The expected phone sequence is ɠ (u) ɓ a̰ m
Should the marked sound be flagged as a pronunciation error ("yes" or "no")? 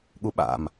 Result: no